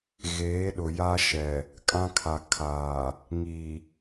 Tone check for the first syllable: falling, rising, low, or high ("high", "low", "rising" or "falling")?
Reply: rising